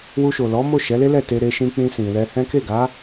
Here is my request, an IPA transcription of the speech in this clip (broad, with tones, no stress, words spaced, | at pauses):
wu˧ʃo˨lɔ˨˦ mo˦˨ʃɛ˨˦le˦lɛ˦˨ te˧ ɾe˧ʃĩ˧k͡pĩ˧ sĩ˨lɛ˧hɛ̃˦ ke˦˨ɡa˨˦